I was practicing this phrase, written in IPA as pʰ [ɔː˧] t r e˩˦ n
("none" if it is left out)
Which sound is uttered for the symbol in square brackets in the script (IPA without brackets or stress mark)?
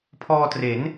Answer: ɔː˧